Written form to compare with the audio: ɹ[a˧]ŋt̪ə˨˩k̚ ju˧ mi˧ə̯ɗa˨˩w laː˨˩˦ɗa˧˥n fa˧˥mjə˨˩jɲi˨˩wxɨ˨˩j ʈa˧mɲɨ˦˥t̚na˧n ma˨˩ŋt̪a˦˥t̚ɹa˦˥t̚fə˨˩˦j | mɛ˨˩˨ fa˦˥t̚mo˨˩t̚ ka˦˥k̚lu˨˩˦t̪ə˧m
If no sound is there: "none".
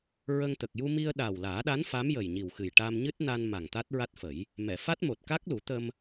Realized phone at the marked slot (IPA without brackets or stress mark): ə˧